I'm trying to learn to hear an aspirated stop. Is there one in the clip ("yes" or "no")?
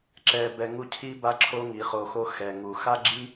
yes